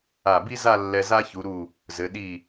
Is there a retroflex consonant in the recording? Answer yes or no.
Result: no